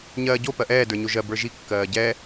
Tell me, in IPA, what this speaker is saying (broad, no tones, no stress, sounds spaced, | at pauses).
ɲ ɜː ɟ o p ɜ ʔ ɛː d ə˞ ɲ o ʒ ɜ b ə˞ ʒ i kː ɜː ɟ ɛ